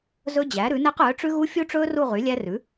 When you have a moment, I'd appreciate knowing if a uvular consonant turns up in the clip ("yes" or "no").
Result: yes